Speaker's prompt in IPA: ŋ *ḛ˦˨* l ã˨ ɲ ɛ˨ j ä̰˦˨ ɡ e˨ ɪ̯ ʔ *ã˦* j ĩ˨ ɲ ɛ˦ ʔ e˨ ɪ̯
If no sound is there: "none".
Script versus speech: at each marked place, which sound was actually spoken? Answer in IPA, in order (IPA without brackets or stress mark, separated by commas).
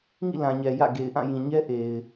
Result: ḭ˦˨, ã˦˨